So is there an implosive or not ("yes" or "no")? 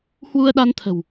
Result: yes